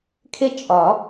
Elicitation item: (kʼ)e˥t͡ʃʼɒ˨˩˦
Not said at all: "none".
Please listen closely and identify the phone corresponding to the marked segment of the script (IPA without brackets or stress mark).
kʰ